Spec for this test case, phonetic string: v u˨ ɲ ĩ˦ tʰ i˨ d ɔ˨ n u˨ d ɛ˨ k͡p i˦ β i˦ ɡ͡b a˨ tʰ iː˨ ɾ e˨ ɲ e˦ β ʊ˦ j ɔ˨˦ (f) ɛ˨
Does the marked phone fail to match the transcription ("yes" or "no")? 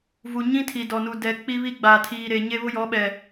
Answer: yes